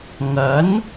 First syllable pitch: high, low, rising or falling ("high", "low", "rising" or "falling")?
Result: rising